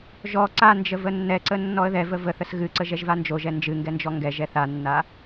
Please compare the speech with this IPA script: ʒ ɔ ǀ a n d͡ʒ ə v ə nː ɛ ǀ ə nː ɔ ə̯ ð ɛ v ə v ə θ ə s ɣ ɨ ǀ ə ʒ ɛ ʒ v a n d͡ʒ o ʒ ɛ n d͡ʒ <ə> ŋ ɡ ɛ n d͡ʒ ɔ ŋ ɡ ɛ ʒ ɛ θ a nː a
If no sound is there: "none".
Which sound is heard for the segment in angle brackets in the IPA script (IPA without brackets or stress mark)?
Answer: ɨ